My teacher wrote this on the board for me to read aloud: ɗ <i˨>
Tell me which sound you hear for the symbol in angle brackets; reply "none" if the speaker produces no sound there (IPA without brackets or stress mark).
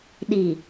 i˨